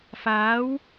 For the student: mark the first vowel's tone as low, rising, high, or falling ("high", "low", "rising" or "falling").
rising